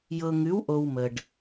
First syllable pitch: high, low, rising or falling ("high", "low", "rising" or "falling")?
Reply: low